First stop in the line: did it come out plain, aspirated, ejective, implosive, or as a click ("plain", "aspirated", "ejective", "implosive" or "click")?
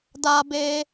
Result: plain